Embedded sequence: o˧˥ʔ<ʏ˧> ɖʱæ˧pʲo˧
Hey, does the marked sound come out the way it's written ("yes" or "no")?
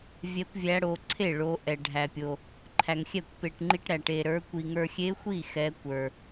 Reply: no